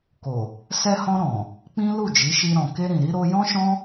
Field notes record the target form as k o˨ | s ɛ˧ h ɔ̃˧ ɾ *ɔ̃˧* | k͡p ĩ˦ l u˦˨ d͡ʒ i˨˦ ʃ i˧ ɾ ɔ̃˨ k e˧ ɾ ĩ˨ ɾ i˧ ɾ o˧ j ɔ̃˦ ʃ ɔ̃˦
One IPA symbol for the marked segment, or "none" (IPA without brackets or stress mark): ɔ̃˨